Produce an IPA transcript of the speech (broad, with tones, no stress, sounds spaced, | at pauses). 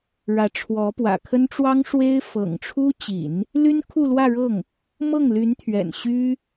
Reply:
ɻ ä˧˥ ʈ͡ʂʰ w ɔ˧˥ p w ä̰˨˩ kʰ ə˥ n ʈ͡ʂ w ɑ˥ ŋ ʂ w e˥ ɪ̯ f ɤ̰˨˩ ŋ ʈ͡ʂʰ u˥ t͡ɕ ḭ˨˩˦ n | l y˥ n kʰ u˥˧ l w ä˥˧ ɻ ɤ˥˩ ŋ | m ɤ˥˩ ŋ l y˧˥ n t̪ʰ ɥ ɛ̰˨˩ n ɕ y˥